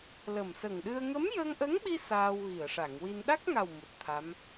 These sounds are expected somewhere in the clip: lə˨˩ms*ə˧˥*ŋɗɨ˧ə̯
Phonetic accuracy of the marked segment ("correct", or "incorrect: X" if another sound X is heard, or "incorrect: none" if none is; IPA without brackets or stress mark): incorrect: ə˨˩